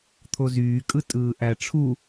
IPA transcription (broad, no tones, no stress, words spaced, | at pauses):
t̪ʰozyːkʼɯ tʼɯːʔæ ʈ͡ʂʰu